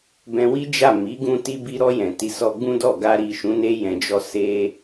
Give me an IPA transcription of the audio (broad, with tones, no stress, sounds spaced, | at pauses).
b ɛ̃˧ w i˦ d͡ʒ a˦˨ m i˨˦ ɡ ũ˧ t i˧ b i˧ ɾ ɔ˧ j ɛ̃˨ t i˨˦ s ɔ˧ ɡ͡b ũ˦ d ɔ˦˨ ɡ a˧ ɾ i˨ ʃ ũ˨˦ n e˧ j ɛ̃˨ d͡ʒ ɔ˧ s e˧